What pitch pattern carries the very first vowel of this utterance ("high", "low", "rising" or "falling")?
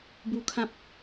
high